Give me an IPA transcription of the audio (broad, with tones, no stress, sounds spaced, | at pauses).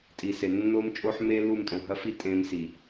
tʼ i˨ s e˨ nː o˦ m t͡ʃʼ o˦ ħ m e˦ l u˦˨ m tʼ õ˨ ɦ ɐ˦ f i˦ tʼ ẽ˦ m s i˨